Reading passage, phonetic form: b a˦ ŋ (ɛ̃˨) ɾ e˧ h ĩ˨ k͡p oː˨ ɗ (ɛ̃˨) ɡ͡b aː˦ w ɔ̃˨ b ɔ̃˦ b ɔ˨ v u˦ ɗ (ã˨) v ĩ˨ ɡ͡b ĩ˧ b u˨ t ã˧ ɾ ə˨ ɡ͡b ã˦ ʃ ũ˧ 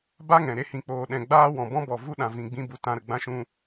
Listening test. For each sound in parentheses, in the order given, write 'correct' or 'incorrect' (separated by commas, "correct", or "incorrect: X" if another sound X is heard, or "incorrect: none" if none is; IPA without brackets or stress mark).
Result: correct, correct, correct